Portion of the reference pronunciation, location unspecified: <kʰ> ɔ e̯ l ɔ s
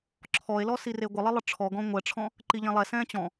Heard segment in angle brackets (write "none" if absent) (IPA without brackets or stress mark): ǁʰ